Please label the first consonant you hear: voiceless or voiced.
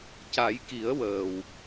voiceless